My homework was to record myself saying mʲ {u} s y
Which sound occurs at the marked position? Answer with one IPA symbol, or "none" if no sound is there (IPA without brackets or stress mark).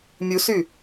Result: u